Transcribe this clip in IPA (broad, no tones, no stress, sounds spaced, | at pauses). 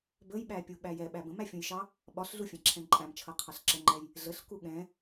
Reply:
b ə j ɓ æ pʲ u ɓ æ j ɛ ɓ æ b ə̃ m æ fʲ ũ j ʃ ɑ | ɓ ɒ ɬ ɮ u fʲ ɛ̃ ǁʰ ɛ̃ ǃʼ æ̃ m t͡ʃʰ ʌ qʰ ɑ ɬ ǁ ə ŋ͡ǃ ɛ j | ɮ ə ɬ k u ɠ ɛ̃